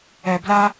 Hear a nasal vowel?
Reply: no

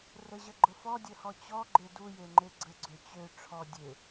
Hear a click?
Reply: yes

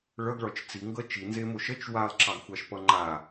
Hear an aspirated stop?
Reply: no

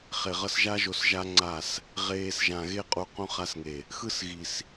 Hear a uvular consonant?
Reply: yes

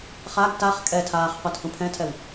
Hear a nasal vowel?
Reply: yes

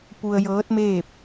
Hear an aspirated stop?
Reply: no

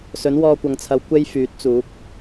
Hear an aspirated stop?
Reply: yes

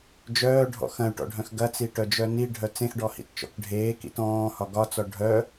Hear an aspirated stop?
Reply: no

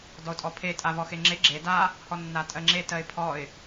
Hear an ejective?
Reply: yes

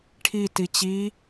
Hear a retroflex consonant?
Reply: yes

